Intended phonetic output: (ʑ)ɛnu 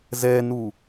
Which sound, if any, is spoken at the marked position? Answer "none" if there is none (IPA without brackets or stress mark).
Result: z